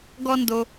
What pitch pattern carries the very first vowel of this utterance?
high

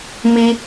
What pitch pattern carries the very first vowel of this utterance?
high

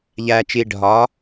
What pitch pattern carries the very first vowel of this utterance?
low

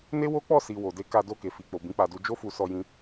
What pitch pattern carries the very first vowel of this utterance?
high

